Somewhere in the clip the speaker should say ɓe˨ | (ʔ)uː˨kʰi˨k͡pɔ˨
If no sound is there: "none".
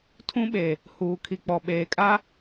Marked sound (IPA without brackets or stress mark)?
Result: h